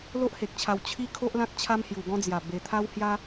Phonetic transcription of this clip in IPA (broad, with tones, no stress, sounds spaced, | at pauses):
l o˦ ʔ h e˨ k̚ t͡ɕʰ a˧ w t͡ɕʰ i˦ kʰ o˦ ʔ l ã˦ k̚ t͡ɕʰ a˦ m h j u˨˩ ɡ ɔ̃˦ d͡z j a˨˩ b e˧ t̪ʰ a˦ w h j a˦